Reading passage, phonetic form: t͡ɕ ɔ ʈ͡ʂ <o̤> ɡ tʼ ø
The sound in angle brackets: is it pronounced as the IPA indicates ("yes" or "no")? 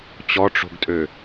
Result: yes